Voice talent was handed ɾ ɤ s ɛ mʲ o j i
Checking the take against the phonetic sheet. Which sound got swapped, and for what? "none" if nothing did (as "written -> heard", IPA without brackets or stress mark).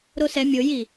ɤ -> o